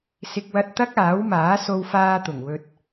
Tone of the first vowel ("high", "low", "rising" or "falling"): low